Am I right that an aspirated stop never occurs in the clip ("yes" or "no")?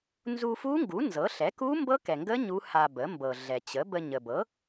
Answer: yes